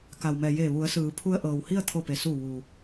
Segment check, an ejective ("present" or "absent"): absent